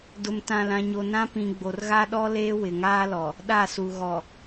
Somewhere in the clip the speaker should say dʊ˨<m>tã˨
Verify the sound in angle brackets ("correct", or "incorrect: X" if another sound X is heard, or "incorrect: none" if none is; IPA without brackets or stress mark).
correct